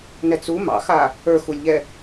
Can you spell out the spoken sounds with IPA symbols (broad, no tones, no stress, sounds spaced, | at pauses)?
n ɛ t͡s u m ɑ̰ x a | ə˞ x u lʲ ʎ ɛ